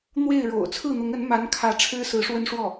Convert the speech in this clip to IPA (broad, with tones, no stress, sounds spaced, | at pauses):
n̪ w e˥˩ ɪ̯ ɻ o̰˨˩ ʊ̯ t͡sʰ ɹ̩˥˩ n̪ ʊ˧˥ ŋ ə˧˥ n m a˧˥ n kʰ ä˧˥ ʈ͡ʂʰ ɻ̩˥ s ɹ̩˧˥ ʂ w ə˥ n ʂ w ɔ˥˩